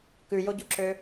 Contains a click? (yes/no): yes